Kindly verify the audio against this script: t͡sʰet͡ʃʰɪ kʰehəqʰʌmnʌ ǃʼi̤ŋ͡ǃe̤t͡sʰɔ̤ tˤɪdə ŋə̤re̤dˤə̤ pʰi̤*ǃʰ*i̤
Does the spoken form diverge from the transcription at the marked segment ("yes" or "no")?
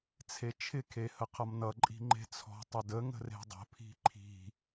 no